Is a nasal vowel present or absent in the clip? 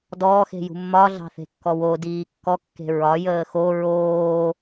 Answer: absent